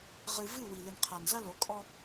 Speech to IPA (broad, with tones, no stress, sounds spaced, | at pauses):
ʁ ɨ˦ v ɨ˦˨ w i˨ l ɨ˨ n qʰ a˨ n z ɐ˦ l o˨˦ kʼ ɔ˦